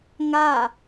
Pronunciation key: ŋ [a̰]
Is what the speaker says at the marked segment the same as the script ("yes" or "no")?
no